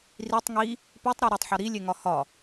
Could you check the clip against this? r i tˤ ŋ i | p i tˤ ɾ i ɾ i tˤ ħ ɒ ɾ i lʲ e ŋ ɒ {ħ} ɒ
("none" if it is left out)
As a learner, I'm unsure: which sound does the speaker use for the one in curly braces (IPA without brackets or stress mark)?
h